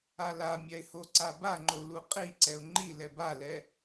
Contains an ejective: yes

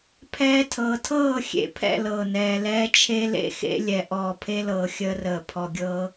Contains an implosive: no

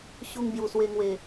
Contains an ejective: no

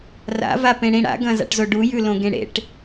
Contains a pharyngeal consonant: no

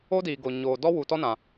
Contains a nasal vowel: yes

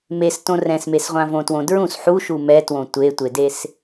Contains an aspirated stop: no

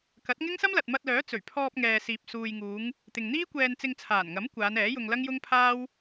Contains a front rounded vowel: yes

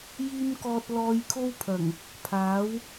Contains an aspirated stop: yes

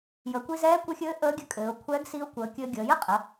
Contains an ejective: yes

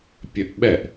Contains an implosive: yes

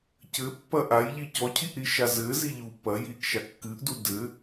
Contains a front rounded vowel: no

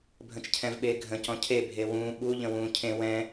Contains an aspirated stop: yes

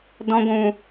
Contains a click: no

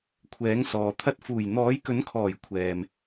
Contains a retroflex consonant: no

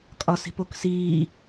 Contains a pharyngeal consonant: no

